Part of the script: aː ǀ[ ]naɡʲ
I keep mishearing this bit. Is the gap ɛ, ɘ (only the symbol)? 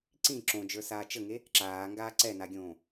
ɛ